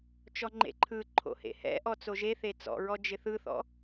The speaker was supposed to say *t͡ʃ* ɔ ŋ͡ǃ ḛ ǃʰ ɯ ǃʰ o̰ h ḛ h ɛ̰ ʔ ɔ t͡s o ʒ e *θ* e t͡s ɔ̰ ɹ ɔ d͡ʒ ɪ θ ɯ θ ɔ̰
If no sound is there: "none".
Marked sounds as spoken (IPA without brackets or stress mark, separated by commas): t͡ʃ, θ